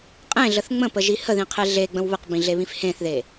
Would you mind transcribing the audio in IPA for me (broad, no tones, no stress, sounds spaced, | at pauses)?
qʼ ẽ ɮ ə θ ŋ͡m ə̃ p ə ʒ i h ə ð ĩ qʰ e ɮ e ɡ͡b ə̃ w β ə q b ĩ ɮ e β ĩ f h ẽ θ ð e